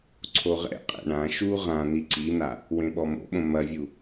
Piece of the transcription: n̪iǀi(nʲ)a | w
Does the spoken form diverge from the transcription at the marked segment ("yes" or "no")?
yes